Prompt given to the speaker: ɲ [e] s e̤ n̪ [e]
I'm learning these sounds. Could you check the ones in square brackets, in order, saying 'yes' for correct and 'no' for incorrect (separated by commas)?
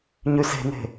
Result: no, no